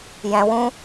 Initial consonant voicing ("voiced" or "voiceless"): voiced